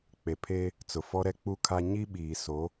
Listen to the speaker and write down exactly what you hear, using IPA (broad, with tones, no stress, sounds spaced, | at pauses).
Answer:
k͡p e˨ pʰ e˦ | t͡s ʊ˨ f ɔ˦ ɾ ɛ˦ k͡p u˦ kʰ a˦ ɲ i˦ ɓ iː˨ s o˨˦